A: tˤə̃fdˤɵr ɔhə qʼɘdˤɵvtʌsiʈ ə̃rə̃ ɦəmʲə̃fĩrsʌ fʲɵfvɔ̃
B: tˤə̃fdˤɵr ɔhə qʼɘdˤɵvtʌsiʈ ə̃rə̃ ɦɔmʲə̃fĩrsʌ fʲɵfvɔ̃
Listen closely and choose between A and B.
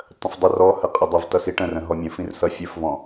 B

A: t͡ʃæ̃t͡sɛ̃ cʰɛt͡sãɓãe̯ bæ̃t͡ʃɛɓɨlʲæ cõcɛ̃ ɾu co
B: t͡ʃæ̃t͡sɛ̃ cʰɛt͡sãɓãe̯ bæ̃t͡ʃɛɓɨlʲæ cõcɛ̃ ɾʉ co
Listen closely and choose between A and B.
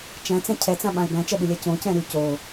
B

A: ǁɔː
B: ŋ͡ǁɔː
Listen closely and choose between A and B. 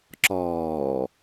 A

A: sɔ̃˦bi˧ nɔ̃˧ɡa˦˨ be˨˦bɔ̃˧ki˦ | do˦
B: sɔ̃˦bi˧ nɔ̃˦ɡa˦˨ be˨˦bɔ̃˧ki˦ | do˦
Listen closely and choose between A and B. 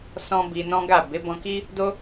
B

